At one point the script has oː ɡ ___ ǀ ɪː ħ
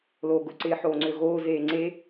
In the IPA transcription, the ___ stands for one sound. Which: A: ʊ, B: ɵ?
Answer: A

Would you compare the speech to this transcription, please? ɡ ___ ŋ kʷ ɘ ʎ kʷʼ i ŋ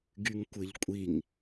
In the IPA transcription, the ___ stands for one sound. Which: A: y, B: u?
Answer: A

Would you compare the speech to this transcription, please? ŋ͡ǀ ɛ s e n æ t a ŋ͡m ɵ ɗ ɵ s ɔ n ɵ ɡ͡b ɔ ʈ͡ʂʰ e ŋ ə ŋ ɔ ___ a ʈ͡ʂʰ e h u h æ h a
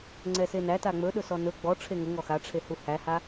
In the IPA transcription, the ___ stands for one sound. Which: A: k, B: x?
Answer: B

